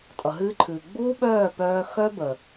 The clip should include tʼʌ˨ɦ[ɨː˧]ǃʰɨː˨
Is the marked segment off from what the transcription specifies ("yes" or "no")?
no